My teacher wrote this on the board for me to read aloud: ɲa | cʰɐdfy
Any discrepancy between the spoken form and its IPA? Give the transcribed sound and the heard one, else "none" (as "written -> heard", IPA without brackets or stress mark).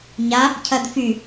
none